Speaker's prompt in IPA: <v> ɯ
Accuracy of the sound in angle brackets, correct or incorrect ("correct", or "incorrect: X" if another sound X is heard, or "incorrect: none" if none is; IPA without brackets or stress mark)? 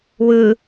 incorrect: w